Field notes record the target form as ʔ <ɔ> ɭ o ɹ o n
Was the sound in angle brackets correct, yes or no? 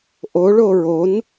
no